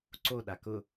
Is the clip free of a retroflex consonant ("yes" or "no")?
yes